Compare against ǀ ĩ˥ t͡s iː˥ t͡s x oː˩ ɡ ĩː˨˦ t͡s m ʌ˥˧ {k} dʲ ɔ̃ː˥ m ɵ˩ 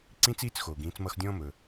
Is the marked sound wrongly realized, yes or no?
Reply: yes